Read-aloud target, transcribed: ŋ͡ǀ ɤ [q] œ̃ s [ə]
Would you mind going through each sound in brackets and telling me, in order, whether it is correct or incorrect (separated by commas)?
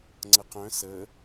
correct, correct